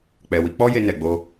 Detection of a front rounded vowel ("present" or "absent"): absent